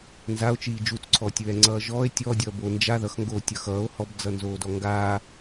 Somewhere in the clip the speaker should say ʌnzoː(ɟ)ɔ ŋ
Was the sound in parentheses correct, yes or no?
no